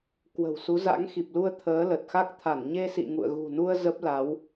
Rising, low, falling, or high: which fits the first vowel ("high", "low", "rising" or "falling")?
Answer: low